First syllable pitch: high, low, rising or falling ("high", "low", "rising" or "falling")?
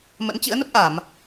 rising